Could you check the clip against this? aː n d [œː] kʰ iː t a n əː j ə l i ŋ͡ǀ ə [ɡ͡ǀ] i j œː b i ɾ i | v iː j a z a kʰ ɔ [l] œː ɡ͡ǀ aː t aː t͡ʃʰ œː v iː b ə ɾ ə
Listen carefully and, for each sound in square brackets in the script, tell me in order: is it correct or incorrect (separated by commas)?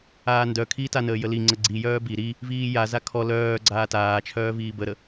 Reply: incorrect, correct, correct